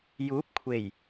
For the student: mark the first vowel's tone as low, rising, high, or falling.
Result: rising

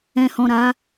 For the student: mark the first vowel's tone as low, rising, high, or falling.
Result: low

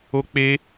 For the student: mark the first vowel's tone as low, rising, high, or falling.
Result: high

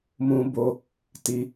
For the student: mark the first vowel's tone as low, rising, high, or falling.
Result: high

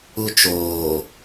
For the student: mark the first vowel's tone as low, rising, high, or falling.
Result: high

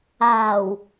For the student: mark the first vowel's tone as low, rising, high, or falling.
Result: low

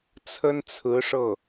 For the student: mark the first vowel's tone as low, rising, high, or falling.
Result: high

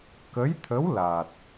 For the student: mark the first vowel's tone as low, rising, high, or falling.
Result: rising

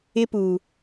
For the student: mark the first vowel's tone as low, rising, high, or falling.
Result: high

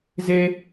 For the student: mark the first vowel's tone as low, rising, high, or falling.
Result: low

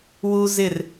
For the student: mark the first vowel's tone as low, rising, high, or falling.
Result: high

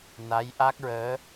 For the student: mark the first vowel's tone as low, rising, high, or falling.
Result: rising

